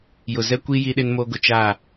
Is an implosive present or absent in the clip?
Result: present